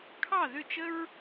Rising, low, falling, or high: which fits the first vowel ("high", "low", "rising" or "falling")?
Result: falling